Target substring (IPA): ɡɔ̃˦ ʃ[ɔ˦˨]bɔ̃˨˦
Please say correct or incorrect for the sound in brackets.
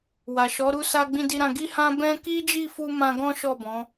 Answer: correct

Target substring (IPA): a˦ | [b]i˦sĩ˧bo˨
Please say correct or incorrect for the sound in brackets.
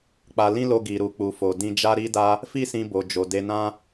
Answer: incorrect: f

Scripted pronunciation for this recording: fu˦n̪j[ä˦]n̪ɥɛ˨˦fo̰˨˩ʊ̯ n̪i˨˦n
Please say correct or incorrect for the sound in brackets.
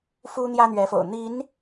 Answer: correct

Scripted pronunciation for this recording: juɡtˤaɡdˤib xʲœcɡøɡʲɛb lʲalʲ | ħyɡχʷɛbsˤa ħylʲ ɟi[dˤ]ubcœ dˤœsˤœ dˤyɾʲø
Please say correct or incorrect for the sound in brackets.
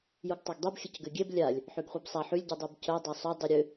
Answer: correct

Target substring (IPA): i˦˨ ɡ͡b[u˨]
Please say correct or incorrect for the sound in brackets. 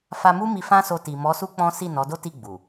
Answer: correct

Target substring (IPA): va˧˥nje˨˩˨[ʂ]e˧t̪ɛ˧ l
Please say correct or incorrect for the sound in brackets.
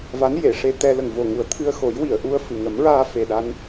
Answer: correct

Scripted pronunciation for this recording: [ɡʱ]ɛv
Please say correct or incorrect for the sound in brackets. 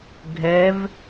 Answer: correct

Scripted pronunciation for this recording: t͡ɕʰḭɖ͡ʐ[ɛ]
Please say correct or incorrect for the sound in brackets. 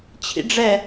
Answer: correct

